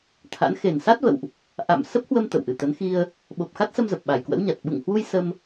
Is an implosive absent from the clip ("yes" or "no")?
no